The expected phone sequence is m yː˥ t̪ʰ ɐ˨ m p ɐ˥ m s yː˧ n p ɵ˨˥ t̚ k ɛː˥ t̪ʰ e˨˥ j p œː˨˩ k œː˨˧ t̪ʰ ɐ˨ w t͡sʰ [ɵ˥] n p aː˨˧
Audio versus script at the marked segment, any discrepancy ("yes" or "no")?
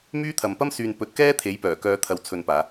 yes